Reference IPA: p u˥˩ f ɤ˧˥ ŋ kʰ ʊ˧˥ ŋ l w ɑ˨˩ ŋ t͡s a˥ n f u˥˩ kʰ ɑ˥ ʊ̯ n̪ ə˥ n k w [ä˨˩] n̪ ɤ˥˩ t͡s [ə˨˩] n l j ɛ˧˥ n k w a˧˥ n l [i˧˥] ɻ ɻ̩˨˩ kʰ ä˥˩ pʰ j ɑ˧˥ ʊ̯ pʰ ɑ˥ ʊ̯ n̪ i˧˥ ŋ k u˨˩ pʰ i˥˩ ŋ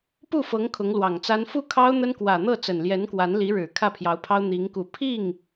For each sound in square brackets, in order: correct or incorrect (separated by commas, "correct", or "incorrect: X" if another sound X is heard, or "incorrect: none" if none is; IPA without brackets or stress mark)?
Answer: correct, correct, correct